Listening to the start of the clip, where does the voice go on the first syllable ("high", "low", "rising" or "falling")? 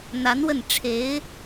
rising